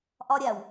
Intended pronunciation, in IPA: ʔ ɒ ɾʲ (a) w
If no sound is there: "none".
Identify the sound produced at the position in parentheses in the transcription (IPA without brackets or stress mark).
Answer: a